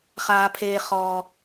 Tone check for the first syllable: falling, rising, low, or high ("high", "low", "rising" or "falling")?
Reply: low